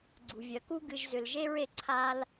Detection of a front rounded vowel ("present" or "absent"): present